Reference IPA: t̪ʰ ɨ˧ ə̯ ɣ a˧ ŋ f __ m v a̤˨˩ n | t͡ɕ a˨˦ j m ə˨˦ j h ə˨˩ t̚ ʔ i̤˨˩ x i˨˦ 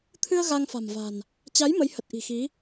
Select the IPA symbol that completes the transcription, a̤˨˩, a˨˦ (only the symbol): a̤˨˩